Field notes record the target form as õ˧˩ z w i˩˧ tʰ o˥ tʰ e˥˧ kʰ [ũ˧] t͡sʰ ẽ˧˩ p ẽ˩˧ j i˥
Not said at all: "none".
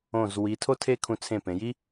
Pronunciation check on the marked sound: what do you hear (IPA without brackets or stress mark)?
ũ˧